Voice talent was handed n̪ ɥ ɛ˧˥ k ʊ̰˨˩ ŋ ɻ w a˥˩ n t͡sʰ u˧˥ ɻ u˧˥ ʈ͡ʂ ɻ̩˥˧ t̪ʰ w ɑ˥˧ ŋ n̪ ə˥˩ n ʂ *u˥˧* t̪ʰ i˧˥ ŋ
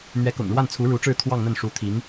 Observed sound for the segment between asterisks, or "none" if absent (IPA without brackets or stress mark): u˧˥